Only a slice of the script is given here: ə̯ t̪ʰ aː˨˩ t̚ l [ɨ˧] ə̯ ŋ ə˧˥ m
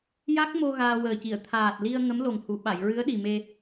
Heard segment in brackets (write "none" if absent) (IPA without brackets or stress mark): i˧